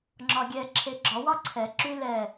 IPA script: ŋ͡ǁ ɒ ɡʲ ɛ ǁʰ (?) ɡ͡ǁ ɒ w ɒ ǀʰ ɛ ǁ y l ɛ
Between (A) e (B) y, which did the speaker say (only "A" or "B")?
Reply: A